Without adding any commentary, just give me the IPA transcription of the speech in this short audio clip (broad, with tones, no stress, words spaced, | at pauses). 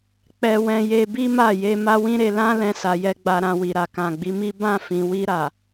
k͡pɛ˧wɛ̃˧je˧ bi˦ma˦˨ je˧ ma˦wĩ˦ɾe˧ lã˦ lɛ̃˧sa˨jɛ˧ ɡ͡ba˧ɾã˧wi˨ɾa˨ kã˨ɡ͡bi˨˦mi˦ bã˦˨ fĩ˨wi˧ɾa˨